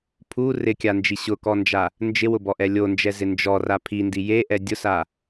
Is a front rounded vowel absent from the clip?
yes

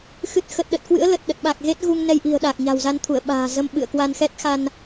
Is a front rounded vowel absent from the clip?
yes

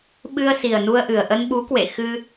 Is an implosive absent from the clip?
no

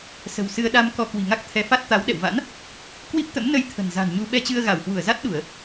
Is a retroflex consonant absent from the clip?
yes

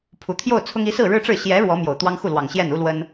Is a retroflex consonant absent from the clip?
no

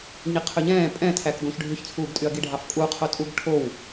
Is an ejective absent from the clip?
no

